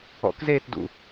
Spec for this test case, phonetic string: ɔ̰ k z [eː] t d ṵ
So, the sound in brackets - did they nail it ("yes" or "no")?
yes